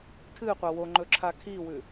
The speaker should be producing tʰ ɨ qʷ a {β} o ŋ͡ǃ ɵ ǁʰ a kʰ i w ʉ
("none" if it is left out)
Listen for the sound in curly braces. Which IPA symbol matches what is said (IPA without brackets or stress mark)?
w